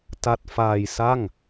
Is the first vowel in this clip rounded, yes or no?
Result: no